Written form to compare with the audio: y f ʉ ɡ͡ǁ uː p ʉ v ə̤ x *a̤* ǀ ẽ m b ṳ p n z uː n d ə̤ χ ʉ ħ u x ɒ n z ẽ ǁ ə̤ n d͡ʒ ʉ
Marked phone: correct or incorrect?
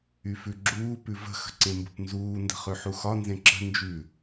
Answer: incorrect